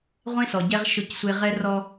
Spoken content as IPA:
ʁʷ ẽ˦ s ɔ˨ ɟ ɛ˦ ʁ ʃ ʊ˦˨ c sʷ e˦ ʁ ɛ˦ r ɔ˦

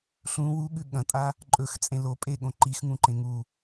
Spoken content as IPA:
ɬ ũ w u ɠ ʉ ɠ ɐ̃ tʼ a | ǃʼ ɵ x t͡sʼ ẽ l o pʼ e ɠ õ ǃ i x ŋ ũ ǃ ẽ ŋ u

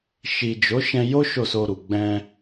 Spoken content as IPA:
ʃ i˨ d͡ʒ o˨˦ ʃ ɛ̃˧ j o˦ ʃ o˦˨ s o˧ ɾ u˨ ɡ͡b ɛ̃˧

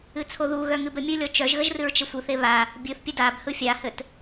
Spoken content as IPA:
ɨ t͡sʰ o ð u ɣ œ ŋ ɨ b ə mʲ ɯ lʲ ɔ t͡ʃ œ ʒ ɣ ə ʒ r ɨ ɹ t͡ʃ ə sʷ ɯ θ e β a | bʲ ɯ θ pʲ ə d a b h ɯ fʲ a h ɘ t

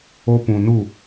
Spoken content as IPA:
o˧ p ũ˨ n u˦˨

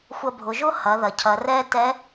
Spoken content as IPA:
xʷ ɐ˧ bʱ ʊ˩˧ ʒ ʊ˥ h ɐ˩˧ ð ɐ˩ cʰ ɐ˩˧ r ɛ˥ t ɛ˧˥

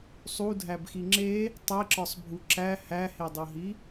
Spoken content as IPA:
sˤ u dʱ æ b x i ŋ͡ǁ e | tˤ e ǁ ɒ sˤ bʱ u ǁ æ h æ h e dˤ o ɦ i

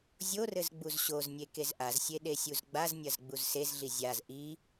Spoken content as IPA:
zʲ o r ɘ z ɡ͡b u z ɕ o z nʲ e k e z ʔ a z sʲ e ɗ e sʲ u z ɡ͡b a z nʲ ɐ z ɡ͡b u z s e z ɮ i zʲ a z ʔ i

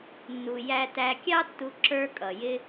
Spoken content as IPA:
nː u˩ j æ˧ t æ˧ kʲ ɑ˥ tː u˧ ǁ ə˞˧ kʼ ʌ˩ j ɪ˧

